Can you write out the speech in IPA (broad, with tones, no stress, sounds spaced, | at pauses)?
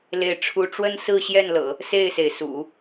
l e˥˩ ɪ̯ ʈ͡ʂʰ u˥ ʈ͡ʂ w ə˥ n s ɹ̩˥˧ ɕ j ɛ˥˩ n l ɤ̰˨˩˦ | s e˥˩ ɪ̯ s e˩ ɪ̯ s ṵ˨˩˦